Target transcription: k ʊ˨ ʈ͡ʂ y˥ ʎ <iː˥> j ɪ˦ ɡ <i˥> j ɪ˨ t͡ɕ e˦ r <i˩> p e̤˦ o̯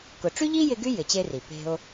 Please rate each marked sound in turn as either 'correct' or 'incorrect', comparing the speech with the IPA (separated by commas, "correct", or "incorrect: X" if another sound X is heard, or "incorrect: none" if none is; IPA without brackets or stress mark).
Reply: correct, incorrect: y˥, correct